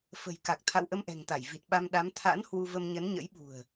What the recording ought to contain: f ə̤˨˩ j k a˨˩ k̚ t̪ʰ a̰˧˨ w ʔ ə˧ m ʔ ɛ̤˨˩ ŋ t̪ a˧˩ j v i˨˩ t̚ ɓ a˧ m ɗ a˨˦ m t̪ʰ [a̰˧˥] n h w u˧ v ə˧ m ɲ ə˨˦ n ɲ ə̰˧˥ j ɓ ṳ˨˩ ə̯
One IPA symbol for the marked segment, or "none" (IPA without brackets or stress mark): a̰˧˥